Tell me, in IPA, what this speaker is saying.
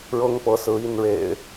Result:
ɻ ɤ˦ ŋ p ɤ˨˦ s ɹ̩˨˦ i˥˨ n ɻ ḛ˨˩ ɪ̯

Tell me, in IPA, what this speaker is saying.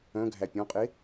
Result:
œ̃ ɡʱ æ pʲ ɔ̃ qʼ e

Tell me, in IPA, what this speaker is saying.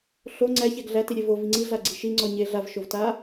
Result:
ɬ o ŋ͡ǀ æ ç æ ɡ ɮ æ t i ɾʲ e v o v i ŋ͡ǀ i ɮ a ɡ͡ǀ i ʃ i ŋ͡ǀ ɔ ɲ e ɮ a v ʃ o v t a

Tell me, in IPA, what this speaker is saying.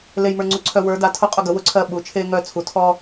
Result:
l e˦ j m ə˞˦ ŋ͡ǀ u˦ ǀʰ œ˦ w ə˞˨˦ d a˨˦ tʰ ʊ˦˨ qʼ ʊ˦˨ ɡ ə˨˦ w ʊ˨˦ ǀʰ ɜ˦˨ ɓ u˨˦ t͡ʃʰ eː˦ ŋ œ˦˨ t͡sʰ u˨˦ tʰ ɔ˦

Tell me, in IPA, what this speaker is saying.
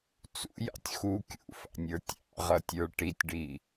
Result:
t͡s ṵ j ɑ̰ tʲ x u kʲ ṵ f ɑ̰ nʲ ə˞ tʲ ɑ̰ ʁ ʌ tʲ ə˞ ʈ i tʲ ɖ i

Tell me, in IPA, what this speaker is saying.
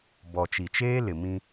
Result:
b ɔ˨ t͡ʃ i˨ t͡ʃ eː˦ l ɪ˨ m ĩ˦

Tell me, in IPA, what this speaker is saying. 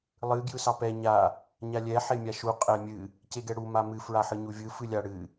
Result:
lˠ ɨ ɡ j ɯ s ɑ p ɛ ɲ a | ɲ a lʲ ɛ ħ e mʲ a ʃ u qʼ ɛ mʲ ɨ | c e ɡ ɛ ɽ u m a m ɨ f ɹ a ħ ɯ ɲ u vʲ ɯ f ɨ lʲ a ɽ ɨ

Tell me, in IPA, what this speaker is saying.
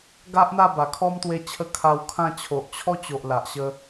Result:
ɡ a˦ ʔ n̪ a˥˧ b a˨˩ kʰ ɔ˦ m t̪ w e˧ t͡ɕʰ ə˥˧ kʰ a˧ w kʰ ã˥˧ t͡ɕʰ o˨ ʔ t͡ɕʰ ɔ˦ t͡ɕ o˨ ʔ l a˨ ʔ ɕ ə˧

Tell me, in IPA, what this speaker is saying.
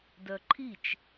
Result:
d œ ǃʰ i t͡ʃ

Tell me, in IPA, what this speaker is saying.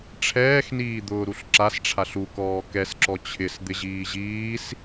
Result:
ʈ͡ʂʰ ɛː x n iː d̪ ʊː ɾ u ɬ ǁ a s ʈ͡ʂʰ a ɬ u k ɔː k ɛ s ǁ ɔ t͡ɕʰ ɪ s d̪ ɪ ʑ iː ʑ iː s

